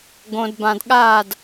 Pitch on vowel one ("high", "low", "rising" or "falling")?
low